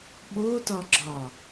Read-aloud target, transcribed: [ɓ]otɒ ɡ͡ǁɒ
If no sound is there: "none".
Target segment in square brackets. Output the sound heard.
ɓ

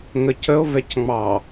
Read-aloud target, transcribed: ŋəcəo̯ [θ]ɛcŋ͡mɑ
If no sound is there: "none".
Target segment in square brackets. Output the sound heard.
v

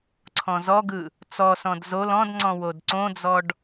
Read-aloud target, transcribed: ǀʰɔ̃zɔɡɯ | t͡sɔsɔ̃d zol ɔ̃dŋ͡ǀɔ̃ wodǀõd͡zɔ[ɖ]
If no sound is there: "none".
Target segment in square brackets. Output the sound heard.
ɖ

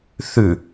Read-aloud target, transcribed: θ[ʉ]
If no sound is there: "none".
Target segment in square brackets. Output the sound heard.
ʉ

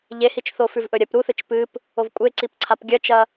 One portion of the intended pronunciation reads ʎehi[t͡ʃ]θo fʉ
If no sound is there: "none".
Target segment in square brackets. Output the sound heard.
t͡ʃ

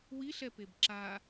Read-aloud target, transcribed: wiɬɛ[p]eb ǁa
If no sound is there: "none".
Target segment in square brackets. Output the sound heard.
p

